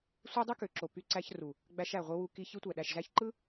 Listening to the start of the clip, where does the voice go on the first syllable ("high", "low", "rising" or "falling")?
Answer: high